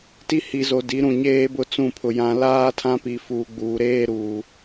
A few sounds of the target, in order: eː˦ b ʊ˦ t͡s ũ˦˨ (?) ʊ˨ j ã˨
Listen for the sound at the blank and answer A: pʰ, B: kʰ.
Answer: A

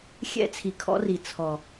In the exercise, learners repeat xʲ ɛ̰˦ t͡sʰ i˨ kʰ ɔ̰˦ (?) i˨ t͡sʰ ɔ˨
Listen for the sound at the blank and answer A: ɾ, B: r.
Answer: B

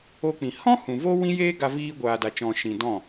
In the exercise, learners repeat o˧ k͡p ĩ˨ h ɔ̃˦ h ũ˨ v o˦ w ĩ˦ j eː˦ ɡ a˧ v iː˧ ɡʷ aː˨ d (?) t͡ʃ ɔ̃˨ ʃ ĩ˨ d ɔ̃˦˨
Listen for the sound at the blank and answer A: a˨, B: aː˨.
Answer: A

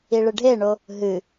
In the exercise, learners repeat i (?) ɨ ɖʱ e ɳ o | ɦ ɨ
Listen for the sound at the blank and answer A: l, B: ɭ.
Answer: B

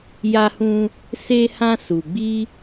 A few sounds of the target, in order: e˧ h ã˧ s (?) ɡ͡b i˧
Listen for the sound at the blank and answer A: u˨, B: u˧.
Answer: A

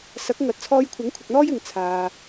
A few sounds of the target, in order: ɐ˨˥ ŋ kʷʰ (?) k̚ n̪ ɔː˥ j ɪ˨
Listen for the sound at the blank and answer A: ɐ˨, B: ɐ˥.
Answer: A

